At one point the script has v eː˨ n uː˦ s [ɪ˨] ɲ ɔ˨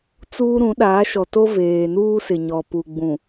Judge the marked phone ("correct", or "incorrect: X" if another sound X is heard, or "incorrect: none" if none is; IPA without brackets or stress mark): correct